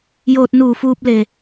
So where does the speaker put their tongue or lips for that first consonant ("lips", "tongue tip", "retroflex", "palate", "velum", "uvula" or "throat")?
palate